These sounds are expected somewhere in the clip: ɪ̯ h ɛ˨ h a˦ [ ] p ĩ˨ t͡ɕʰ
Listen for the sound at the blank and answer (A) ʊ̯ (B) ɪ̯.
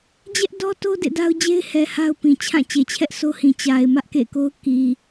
A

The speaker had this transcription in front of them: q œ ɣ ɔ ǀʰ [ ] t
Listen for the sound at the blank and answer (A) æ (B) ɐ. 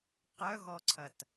B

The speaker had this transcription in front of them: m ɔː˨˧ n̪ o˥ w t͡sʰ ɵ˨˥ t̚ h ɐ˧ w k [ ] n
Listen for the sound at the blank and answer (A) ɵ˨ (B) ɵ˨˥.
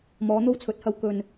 A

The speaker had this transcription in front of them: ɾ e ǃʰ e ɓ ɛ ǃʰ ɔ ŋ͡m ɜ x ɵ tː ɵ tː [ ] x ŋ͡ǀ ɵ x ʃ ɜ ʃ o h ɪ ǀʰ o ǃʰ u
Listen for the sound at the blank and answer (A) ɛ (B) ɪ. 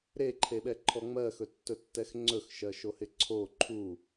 A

